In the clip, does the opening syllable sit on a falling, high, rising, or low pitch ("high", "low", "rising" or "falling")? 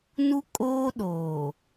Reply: high